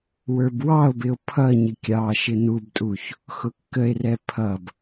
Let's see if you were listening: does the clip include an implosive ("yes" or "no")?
no